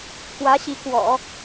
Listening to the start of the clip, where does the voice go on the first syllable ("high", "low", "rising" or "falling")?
rising